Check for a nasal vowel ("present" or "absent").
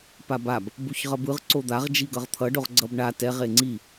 absent